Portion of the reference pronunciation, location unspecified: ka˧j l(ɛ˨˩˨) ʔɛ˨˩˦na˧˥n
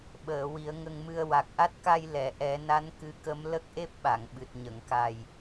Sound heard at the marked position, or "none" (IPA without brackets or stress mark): ɛ˨˩˨